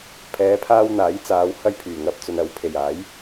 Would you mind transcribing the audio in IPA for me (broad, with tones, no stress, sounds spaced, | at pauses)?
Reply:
pʰ ɛː˨˧ pʰ aː˧ w n̪ aː˨˥ j t͡s aː˨˧ w h ɐ˧ j pʰ yː˨˩ ŋ ɐ˧ p̚ t͡s ɵ˨ n ɐ˨˧ w pʰ e˨˩ j aː˨˥ j